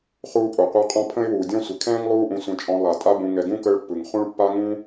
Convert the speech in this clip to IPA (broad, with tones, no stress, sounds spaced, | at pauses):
χ uː˦ pʼ o˩ qʷ a˦ qʼ ɔ̃˦ pʰ ə̃˥ ɪ̯ w uː˩ dʲ ɔ̃˦ sʷ ɪ˩ kʰ ɛ̃ː˥ ŋ lˠ uː˦ ʔ ũ˨ sʷ ɛ̃˨ t͡ʃʼ ɔ̃˨ lˠ a˩ tʼ a˦ b ũ˨ ŋ ɛ˨ ɡ ũ˥ k əː˦ ɭ pː ɯ˩ ŋ χ ũ˥ ɭ pː a˥ ŋ ũ˥